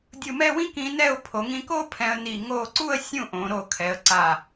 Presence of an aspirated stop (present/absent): present